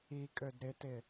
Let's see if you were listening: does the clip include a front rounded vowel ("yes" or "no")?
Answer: yes